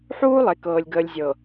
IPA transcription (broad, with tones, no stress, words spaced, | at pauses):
ħuː˦lˠe˨kɤː˨lʲɡəː˨lʲ zʲɤ˨